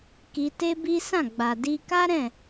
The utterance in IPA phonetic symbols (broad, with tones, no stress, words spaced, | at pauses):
ki˧te˦bi˦ sã˦˨ɡ͡ba˨di˧ ka˦ɾɛ̃˦˨